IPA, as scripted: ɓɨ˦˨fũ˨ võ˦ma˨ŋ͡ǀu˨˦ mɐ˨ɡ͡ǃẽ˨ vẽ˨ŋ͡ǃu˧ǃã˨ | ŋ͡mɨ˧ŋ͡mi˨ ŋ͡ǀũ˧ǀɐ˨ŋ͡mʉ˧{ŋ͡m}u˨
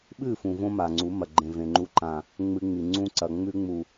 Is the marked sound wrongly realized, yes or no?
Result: no